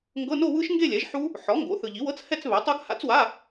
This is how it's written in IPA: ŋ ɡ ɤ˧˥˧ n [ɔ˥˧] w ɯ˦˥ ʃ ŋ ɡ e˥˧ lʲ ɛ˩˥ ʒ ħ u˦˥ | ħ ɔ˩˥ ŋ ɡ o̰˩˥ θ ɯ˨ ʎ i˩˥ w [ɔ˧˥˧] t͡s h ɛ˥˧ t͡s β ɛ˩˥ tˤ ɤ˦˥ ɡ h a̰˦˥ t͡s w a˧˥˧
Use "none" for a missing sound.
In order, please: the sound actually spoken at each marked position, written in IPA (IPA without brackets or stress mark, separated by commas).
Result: o˥˧, ɤ˧˥˧